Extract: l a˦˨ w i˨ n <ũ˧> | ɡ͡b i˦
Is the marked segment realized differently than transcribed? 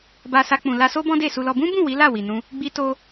no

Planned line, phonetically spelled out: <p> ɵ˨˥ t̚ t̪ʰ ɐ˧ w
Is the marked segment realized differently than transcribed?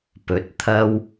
no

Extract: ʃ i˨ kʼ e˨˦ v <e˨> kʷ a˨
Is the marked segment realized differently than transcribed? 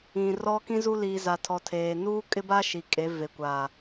no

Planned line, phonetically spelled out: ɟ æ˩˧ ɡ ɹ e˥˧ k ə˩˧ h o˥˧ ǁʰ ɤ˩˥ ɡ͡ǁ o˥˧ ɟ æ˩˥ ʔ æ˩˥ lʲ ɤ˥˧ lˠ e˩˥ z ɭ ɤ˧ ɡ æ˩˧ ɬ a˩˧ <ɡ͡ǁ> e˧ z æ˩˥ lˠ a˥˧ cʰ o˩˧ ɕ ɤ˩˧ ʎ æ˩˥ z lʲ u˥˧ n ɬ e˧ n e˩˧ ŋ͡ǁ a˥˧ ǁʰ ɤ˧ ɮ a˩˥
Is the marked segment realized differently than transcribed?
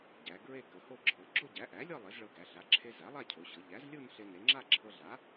yes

